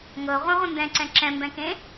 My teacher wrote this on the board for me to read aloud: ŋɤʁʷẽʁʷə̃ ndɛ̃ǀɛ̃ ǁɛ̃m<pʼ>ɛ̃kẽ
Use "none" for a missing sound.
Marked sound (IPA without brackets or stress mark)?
b